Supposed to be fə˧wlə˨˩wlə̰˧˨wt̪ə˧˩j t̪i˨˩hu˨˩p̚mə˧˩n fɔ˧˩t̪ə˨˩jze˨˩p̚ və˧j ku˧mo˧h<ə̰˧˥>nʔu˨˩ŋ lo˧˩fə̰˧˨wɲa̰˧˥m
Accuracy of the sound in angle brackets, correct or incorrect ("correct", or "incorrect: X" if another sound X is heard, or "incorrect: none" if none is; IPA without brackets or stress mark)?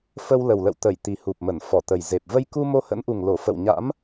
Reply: correct